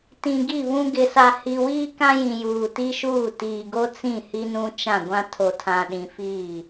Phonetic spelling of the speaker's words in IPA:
t ĩ˨ ɡ i˦˨ β ũ˦ ɡ ɪ˨ s a˨ h i˨ w iː˦ k ã˦ j ĩ˨ j uː˨ t i˦ ʃ uː˦˨ t iː˨ ɡ o˦ t͡s ĩ˦˨ h i˦ n ũ˦ t͡ʃ ã˦˨ ɡʷ ã˦ tʰ o˨ tʰ ã˨ ɗ ĩ˨ f iː˦˨

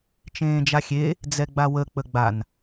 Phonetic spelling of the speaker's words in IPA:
t͡ʃ ẽː d͡ʒ a xʲ e | d͡z ɛ ɡ͡b a w ə k͡p ə ɡ͡b a n

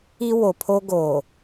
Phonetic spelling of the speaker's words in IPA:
i˦ w o˨ pʰ o˦ ɡ oː˨

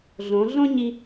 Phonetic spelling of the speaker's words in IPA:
ɮ õ˩˧ ɮ õ˥ ɲ i˧

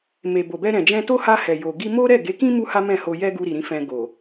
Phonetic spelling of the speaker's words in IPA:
m e˨ b o˨ b ɛ˧ ɾ ɛ̃˨ d͡ʒ ɛ̃˧ t o˦ h a˧ h ɛ˨ j o˨ ɡ i˧ m o˦ ɾ ɛ˦˨ ɡ e˨˦ k ĩ˦ m u˦ h a˦ m ɛ̃˦˨ h o˧ j ɛ˦ ɡ u˧ ɾ i˨ ɾ ĩ˧ f ɛ̃˧ ɡ o˨

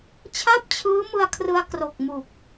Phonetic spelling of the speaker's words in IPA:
t͡ɕʰ a˥˩ p̚ t͡ɕʰ ɯː˦˥ m ɯ˧ a̯ kʰ r ɯ˧ a̯ k r o˨˩ k̚ m u˨˩ k̚

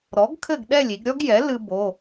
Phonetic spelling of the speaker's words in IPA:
ɾ ɔ˩˥ ɡ kʰ ɘ˥˨ ɡ ɗ ɛ˥˨ lʲ i˩˧ ɡ ɾʲ ɔ˥ ɡ j ɛ˩˥ l ɨ˧ b o˩˧˩

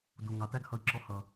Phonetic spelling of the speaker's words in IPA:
d u˨ ŋ ɑ˨ t æ˦ ɡ h ʌ˧ i̯ ǁ ɔ˧ h ʌ˨

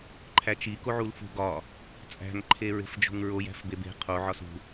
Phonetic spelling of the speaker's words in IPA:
ǃʰ æ t͡ʃ i k o ʕ u l f ṳ ɡ ɒ | t͡sʼ æ̤ ŋ ǃʰ e ɹ e̤ f d͡ʒ o̤ ŋ ɹ o j æ̤ f b e b e̤ qʰ o ʕ ɒ s ṳ

